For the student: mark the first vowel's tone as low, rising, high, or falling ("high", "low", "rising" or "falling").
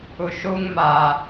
low